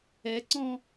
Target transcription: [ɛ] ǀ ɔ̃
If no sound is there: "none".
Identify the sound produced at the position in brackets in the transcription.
ɛ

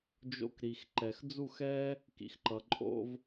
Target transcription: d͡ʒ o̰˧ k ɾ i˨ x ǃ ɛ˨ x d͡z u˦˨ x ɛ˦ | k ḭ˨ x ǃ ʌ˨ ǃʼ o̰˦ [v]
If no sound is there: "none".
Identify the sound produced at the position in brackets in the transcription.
v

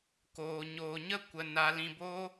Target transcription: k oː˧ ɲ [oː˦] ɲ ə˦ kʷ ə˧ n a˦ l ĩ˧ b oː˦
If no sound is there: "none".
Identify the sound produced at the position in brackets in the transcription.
oː˧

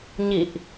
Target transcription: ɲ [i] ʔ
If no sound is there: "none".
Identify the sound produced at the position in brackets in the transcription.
i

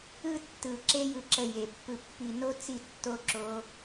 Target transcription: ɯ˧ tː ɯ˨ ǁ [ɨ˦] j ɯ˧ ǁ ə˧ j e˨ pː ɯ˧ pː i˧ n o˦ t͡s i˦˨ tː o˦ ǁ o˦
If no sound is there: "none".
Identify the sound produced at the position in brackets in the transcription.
e˦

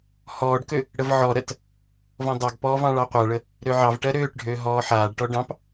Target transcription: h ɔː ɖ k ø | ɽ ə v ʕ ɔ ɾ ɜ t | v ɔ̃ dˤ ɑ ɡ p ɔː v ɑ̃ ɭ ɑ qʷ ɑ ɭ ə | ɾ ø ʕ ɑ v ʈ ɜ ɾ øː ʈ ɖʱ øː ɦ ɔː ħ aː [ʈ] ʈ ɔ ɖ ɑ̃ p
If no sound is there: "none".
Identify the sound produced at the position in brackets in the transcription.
ɖ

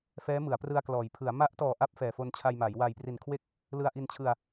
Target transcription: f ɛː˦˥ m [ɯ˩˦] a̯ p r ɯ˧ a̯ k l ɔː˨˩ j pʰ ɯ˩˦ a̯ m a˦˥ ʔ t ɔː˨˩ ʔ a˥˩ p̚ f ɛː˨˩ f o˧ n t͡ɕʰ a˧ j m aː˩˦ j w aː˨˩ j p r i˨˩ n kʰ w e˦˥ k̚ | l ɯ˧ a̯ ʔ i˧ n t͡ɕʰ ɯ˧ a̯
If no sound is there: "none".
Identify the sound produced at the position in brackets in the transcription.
ɯ˩˦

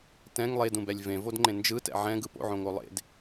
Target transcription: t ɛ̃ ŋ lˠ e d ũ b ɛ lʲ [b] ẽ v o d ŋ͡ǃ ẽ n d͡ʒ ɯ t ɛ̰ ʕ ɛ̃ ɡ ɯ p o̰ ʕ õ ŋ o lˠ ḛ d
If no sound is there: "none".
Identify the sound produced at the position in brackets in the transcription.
v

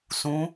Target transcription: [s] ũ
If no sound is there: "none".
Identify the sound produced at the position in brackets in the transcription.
s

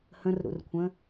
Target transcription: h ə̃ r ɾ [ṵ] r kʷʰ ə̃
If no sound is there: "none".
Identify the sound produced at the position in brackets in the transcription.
ṵ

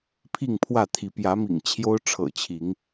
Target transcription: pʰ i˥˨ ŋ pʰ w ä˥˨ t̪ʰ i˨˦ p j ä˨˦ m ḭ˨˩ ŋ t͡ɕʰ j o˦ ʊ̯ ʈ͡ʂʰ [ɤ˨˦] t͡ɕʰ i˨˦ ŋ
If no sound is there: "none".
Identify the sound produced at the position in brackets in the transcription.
ɤ̰˨˩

